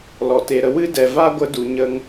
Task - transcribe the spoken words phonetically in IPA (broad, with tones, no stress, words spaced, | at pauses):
lɔ˨te˨ɾə˧ wɨ˦dɛ˨vaː˦ɡʷə˧ du˨ɲə˧ŋ